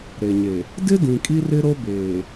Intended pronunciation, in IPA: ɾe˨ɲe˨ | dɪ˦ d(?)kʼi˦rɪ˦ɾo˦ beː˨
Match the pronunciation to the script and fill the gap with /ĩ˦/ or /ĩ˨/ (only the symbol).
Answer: ĩ˨